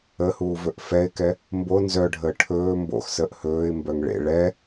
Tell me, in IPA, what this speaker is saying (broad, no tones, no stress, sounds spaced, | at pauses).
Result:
ə h uː v ɵ ʔ f ɛ ɪ̯ k ɛ | m b o n z œ ɖʱ əː ʈʰ ɵː m b o̰ x s ə ʔ h ɵː ɪ̯ m b œ ŋ ɭ ḛ ɭ ɛ